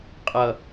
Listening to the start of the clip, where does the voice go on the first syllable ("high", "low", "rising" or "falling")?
low